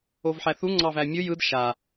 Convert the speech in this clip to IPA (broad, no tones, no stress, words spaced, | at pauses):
ovħæθu ŋ͡ǀɑvæmʲɯ jɯd ʃa